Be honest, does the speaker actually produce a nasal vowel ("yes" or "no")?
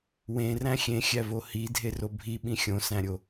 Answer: yes